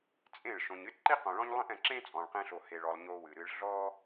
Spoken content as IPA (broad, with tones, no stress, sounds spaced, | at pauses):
t͡sʼ ẽ˦˨ ɭ ʃ õ˨ ɲ ɨ˦ t ǃ i˦ q õ˨ ɭ ɔ̃˦ ɲ lˠ ĩ˦ ʔ ɛ̃˨ ǁ ẽ˦ t͡sʼ ɔ̃˨ ɭ q ẽ˧ ɬ o˨ h e˨ ɭ ɔ˨ lˠ ɲ o˧ w ɨ˨ ɾ ɨ˧ ɭ ɮ ɔ˦